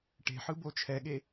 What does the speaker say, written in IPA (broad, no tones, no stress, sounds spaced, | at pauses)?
ʈ e̤ ħ ɯ b o t͡ʃʰ ɛ ɠ e